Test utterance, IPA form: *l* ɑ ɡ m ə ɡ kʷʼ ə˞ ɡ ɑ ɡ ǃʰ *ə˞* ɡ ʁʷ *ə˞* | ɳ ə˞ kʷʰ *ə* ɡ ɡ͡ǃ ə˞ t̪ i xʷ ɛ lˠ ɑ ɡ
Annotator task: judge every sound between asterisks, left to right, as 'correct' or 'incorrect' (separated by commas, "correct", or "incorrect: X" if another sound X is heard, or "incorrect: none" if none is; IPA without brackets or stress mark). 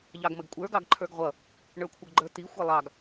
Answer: incorrect: ʎ, correct, incorrect: ʌ, incorrect: ʌ